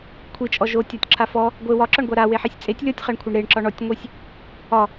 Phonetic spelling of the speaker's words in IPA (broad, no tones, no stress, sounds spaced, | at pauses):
kʷʰ i t͡ʃʼ ɔ ʒ o tʲ ɔ tʲ ǁ a f ɔ | ɡʷ e w ɒ ǁ ɒ ɳ ɡʷ a ɾ a w e ħ e sʲ t͡sʼ e tʲ lʲ ɔ tʲ χ a ɳ kʷʰ e ɳ ɾ e ɳ ǁ ɒ ɳ ɔ tʲ ŋʷ i sʲ | ɒ